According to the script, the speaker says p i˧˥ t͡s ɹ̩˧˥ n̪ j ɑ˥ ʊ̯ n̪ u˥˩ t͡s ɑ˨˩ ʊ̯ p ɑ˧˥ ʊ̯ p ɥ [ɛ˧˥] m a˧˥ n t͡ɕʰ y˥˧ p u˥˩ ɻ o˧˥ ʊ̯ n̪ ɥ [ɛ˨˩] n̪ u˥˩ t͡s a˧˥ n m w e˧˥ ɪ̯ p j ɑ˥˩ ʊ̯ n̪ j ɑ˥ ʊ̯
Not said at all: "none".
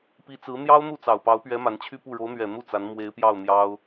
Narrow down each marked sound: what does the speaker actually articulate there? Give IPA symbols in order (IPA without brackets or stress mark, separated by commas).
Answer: ɛ˧˥, ɛ˨˩